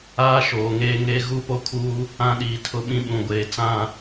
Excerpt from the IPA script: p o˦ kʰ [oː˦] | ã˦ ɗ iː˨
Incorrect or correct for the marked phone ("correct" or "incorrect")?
incorrect